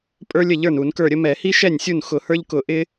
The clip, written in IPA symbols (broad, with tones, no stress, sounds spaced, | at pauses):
pʼ ə˞˥ lʲ ə˥˩ ʎ ə˞˥˩ n u˧˩˧ n k ə˞˥˩ ɾʲ ə˥ m ɛ˧˩˧ h i˥ ʃ ɛ˥˩ nʲ sʲ u˥˩ n x ʊ˧˩˧ h ə˞˥ ʎ k ʊ˧˩˧ ʔ ɪ˥